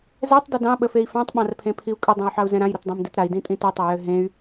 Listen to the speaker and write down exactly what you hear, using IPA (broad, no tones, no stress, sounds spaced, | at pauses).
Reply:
z ɛ tˤ d ʏ d ɑ̃ ɓ ə f e i̯ f ɑ̃ tˤ ɓ ɑ̃ r pʰ ẽ pʰ i u̯ kʼ ʏ dˤ ɛ̃ y̯ ħ ɑ u̯ z ɛ̃ ɾ ã j ɾ ə t dˤ ɛ̃ m d ɨ t ɾ a i̯ d ĩ tʼ ĩ t ɨ tˤ e j ø ɦ ẽ y̯